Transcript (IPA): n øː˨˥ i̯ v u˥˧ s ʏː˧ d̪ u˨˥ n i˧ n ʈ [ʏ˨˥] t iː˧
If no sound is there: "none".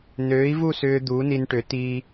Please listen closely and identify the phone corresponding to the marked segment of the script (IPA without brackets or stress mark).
ʏ˨˥